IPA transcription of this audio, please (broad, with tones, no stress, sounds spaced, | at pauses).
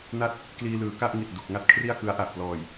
n a˥˩ t̚ | k l iː˧ l ɯː˩˦ k a˥˩ ʔ ŋ i˨˩ t̚ d u˨˩ k̚ ŋ a˥˩ t̚ kʰ r i˥˩ a̯ k ɯ˦˥ a̯ ʔ a˨˩ ʔ p l ɔː˨˩ j